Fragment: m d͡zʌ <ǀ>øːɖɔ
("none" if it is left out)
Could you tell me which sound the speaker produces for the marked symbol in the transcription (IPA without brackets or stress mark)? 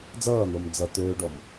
t̪